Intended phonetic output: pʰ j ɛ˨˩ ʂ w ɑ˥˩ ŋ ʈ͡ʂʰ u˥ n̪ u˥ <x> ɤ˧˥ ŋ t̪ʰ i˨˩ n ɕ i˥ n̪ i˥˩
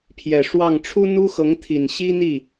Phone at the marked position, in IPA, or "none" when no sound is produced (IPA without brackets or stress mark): x